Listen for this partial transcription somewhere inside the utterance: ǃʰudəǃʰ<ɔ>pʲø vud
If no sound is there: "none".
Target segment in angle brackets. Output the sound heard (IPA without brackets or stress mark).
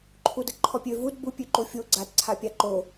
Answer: ɔ